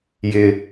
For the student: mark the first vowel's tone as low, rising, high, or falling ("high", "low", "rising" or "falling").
low